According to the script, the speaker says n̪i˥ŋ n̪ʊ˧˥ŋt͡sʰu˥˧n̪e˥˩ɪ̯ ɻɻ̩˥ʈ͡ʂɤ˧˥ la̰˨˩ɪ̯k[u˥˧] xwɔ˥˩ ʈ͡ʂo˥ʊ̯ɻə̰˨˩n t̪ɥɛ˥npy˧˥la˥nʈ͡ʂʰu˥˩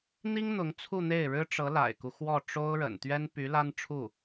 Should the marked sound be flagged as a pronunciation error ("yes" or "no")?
yes